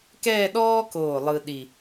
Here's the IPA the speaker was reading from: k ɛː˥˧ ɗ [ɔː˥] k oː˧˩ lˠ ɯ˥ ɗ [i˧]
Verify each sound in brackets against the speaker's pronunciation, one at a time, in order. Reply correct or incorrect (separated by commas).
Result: correct, incorrect